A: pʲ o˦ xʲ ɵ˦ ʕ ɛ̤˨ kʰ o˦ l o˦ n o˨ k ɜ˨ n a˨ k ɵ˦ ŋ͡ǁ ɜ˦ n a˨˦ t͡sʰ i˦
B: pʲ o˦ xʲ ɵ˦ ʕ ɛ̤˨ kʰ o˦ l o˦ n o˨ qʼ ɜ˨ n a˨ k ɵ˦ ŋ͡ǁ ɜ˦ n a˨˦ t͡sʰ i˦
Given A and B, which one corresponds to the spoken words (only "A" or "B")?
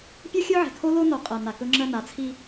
B